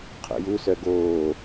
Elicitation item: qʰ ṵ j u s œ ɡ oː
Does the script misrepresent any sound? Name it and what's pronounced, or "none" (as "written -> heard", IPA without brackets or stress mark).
none